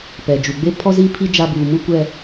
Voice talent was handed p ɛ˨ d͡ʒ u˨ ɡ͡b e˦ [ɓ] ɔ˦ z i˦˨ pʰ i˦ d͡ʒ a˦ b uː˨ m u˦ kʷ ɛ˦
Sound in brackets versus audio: incorrect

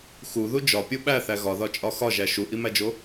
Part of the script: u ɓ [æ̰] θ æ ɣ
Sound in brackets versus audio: incorrect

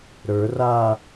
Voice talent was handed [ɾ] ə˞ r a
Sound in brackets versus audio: correct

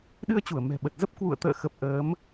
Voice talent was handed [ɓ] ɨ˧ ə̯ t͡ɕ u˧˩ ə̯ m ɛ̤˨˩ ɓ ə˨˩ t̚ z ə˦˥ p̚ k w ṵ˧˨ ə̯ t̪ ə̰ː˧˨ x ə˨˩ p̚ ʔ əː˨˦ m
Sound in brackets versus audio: incorrect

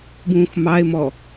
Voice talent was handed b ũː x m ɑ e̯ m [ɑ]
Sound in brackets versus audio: incorrect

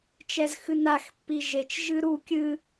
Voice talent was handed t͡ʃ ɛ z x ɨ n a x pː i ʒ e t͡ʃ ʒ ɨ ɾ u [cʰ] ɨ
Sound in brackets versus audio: incorrect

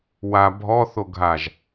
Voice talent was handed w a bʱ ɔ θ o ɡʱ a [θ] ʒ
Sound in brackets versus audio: incorrect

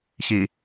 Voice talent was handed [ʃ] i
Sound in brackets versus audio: incorrect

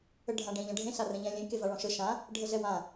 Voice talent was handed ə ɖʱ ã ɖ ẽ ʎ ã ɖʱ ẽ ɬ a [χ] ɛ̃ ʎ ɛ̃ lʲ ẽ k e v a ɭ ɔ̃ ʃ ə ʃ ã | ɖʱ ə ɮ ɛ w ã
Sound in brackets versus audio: incorrect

